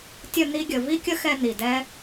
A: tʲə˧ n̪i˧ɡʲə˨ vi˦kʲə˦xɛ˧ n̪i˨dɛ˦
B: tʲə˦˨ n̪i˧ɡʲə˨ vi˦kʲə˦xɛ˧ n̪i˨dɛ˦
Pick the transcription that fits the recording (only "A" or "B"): B